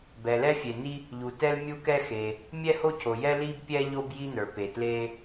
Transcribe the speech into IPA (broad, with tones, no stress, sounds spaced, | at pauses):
b ɛ˩ l ɛ˥ fʲ e˩ n i˥ | ʎ u˩ t ɛ˥ l mʲ u˥ k ɛ˥ x e˩ | mʲ ɛ˥ h o˥ cʰ o˩ j ɛ˥ l i˥ b pʲ ɛ˥ ʎ o˥ b j i˥ n ə˞˩ p e˩ t l e˥